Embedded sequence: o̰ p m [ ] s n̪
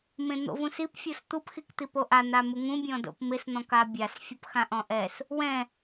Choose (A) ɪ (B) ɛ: A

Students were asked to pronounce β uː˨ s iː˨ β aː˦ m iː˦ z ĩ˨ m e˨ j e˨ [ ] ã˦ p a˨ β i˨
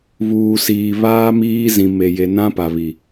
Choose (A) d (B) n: B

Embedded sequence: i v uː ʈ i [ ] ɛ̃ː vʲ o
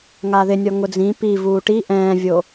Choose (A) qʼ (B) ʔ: B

